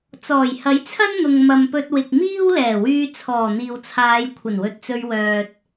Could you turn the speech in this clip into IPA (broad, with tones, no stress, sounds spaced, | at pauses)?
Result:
t͡s ɔː˨˩ j h ɐ˨˥ j t͡sʰ ɐ˥ n n̪ ʊ˨ ŋ m ɐ˨ m p ɵ˧ t̚ w ɪ˨ k̚ m iː˥ w l ɛː˨˩ w yː˧ t͡sʰ ɔː˨˩ n̪ iː˨ w t͡sʰ aː˨˧ j kʷʰ ɐ˨˩ n w ɵ˨ t̚ t͡s ɵ˧ ɥ w œː˨ t̚